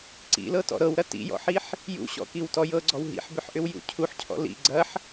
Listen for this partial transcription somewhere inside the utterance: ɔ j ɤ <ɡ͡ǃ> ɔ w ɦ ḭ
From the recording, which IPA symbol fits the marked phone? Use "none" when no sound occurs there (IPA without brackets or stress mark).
ɡ͡ǀ